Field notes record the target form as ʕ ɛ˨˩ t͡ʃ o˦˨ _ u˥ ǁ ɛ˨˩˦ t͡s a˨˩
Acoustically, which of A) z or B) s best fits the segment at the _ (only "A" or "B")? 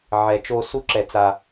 B